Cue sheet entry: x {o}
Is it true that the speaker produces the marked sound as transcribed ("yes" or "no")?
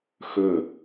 no